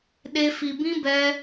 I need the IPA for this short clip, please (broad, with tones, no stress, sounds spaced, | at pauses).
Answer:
ɗ e˦ f i˧ b ĩ˦ b ɛ˦